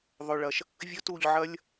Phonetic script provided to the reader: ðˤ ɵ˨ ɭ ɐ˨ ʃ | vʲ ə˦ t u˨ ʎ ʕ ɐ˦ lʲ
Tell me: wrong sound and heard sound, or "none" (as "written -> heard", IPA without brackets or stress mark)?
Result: ə˦ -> ɵ˦